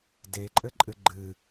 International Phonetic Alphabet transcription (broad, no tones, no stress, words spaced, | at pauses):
deǃʼɘǃʼɨ ɡ͡ǃɨ